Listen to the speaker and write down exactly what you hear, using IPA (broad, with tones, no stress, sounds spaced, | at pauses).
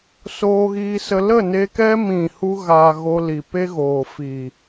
s oː˧ ɣ iː˧ s ə˧ l ə˦˨ n e˧ k ɛ˦ m ĩ˦˨ h u˧ ɣ aː˨ ɣ o˧ l i˨ p e˦ ɣ oː˨ f iː˨